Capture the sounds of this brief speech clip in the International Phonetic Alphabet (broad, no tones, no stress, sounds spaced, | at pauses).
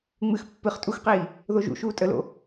ŋ͡m ɨ x pː ɨ χ tʼ u x q iː | ð o ʒ ṵ ʃ uː tʼ ə l o̰